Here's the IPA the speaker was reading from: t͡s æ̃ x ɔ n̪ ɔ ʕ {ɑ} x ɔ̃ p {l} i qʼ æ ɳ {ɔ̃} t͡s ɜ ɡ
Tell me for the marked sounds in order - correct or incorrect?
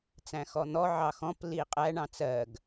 correct, correct, incorrect

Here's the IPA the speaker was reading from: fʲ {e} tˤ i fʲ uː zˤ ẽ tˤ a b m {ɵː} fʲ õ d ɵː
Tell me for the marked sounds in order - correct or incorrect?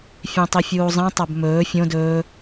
incorrect, correct

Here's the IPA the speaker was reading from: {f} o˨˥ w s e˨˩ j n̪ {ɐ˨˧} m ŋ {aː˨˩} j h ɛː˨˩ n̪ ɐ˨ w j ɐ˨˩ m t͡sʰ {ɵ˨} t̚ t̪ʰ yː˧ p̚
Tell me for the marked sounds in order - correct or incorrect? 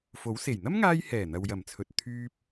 correct, incorrect, incorrect, correct

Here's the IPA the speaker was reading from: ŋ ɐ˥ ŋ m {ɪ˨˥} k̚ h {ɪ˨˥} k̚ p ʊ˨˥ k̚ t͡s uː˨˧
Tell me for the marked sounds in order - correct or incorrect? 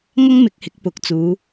correct, correct

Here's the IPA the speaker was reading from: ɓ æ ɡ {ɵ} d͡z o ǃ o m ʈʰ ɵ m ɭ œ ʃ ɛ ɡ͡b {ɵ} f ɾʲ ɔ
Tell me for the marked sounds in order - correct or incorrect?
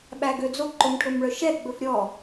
incorrect, correct

